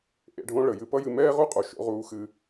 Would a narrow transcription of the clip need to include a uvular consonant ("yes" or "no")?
yes